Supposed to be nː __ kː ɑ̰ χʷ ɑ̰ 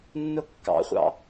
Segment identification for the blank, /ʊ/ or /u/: ʊ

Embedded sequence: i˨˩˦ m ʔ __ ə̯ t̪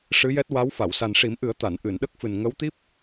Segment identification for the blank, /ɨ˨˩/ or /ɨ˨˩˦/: ɨ˨˩˦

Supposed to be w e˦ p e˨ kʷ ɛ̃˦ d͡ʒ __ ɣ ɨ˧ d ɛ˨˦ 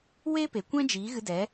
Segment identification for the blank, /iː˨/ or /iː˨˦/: iː˨˦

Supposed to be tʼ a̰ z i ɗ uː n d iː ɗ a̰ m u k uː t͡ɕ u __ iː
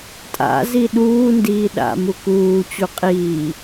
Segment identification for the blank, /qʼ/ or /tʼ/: qʼ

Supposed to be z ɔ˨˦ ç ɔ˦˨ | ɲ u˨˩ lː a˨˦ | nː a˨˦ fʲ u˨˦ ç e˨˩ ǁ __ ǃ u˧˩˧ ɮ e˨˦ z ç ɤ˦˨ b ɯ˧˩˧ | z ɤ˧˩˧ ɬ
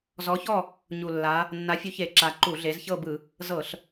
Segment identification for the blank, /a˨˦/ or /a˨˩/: a˨˩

